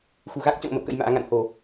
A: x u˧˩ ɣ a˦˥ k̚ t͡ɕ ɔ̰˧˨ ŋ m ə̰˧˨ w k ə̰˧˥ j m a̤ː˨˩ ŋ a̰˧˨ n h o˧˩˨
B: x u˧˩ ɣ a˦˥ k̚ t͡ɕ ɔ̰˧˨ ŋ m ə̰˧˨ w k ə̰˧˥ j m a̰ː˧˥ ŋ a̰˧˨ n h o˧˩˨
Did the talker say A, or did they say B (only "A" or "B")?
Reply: B